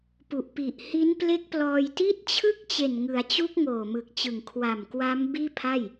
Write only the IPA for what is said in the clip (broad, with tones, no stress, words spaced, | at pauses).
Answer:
pu˨˩ʔpi˨˩ʔ hi˦˥nple˦˥k̚plɔː˧jti˥˩t̚ t͡ɕʰɯ˥˩k̚t͡ɕe˨˩n ŋɯ˩˦a̯t͡ɕu˦˥k̚ ŋoː˨˩mɯ˨˩k̚t͡ɕɯ˨˩ŋ kʰwa˨˩m kwa˦˥m biː˥˩pʰa˥˩j